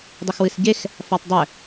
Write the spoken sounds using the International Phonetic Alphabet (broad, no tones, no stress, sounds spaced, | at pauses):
dˤ ɘ x w ɨ s ɟ e x | f a tˤ dˤ ɘ